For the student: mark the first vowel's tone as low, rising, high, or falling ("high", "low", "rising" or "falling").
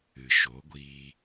low